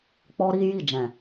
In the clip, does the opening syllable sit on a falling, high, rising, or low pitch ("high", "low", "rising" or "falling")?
high